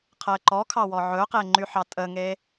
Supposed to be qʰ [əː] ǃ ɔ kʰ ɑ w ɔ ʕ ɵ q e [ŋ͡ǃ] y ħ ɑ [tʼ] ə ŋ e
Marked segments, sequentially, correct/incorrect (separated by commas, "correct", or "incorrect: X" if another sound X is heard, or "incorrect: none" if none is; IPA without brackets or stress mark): correct, correct, correct